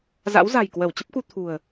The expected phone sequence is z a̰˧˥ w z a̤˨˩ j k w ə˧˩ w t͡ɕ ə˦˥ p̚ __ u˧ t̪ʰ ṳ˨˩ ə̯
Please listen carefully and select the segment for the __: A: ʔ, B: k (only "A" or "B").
B